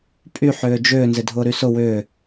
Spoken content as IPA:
pʼ y ħ ʏː d͡ʒ ʏː n z ɪ dʱ ʊː ɾ y s ʊ w ʏː

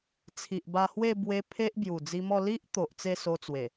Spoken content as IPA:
t͡sʰ i˨ ʔ b a˧ h w e˥˧ b w e˧ pʰ e˦ ʔ b j u˨˩ d͡z i˧ m ɔ˥˧ l i˦ ʔ t̪ o˨ ʔ t͡s e˥˧ s o˧ t͡s w e˨˩

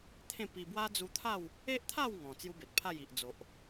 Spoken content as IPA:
t̪ʰ ẽ˥˧ p i˧ b w a˦ d͡z u˧ t̪ʰ a˥˧ w | e˦ ʔ t̪ʰ a˥˧ w ŋ ɔ̃˨˩ t͡s j u˦ b e˨ t̚ pʰ a˥˧ j i˨ ʔ d͡z o˨ ʔ

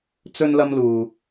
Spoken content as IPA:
t͡s ɵ˥ n l ɐ˥ m l uː˧

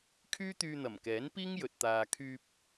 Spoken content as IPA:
kʰ yː˥ t̪ yː˧ n̪ ɐ˨˩ m k ɛː˨˥ n p iː˥ ŋ j ɵ˨ t̚ t̪ aː˨ kʰ yː˧ p̚

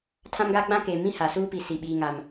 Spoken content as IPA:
tʰ ã˦ m ɡ a˦ ɡ͡b ã˦ k eː˨ m ĩ˦ h a˦ s uː˦ p i˨ s i˨ ɓ iː˦ ŋ a˦ m

